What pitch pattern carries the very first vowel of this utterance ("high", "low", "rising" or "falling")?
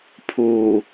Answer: low